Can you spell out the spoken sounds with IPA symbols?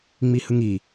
ŋ͡m i h ɯ ŋ i

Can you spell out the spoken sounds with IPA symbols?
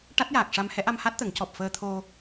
ʈ a˦˥ t̚ j aː˨˩ k̚ ʂ a˧ m h ɛ˧˥ ʔ a˧ m h a˦˥ t̚ t̪ ə˨˩˦ ŋ c ɔ˨˩ p̚ f əː˧ t̪ʰ o˧

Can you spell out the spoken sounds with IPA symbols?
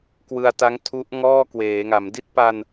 k w ɯ˧ a̯ t a˦˥ ŋ tʰ u˦˥ ʔ ŋ ɔː˥˩ k w eː˩˦ ŋ a˩˦ m d i˦˥ t̚ p a˧ n

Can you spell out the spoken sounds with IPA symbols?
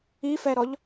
i f ɛ ɾ ɔ ʎ

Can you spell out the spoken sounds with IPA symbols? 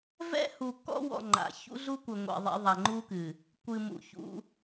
v ɛ̰˦ h u˨ k ɔ̰˦ w ɔ̰˨ ŋ͡ǃ a̰˨ ç ṵ˦ ɮ u˦ kʷ ɘ˨ ŋʷ ɛ̰˨ ðˤ ɛ̰˦ ðˤ a˨ ŋ͡ǃ u˦ k ɨ˨ | kʷ ɨ˨ m ṵ˨ ç ṵ˦

